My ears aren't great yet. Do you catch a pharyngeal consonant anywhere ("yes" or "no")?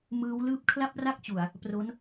no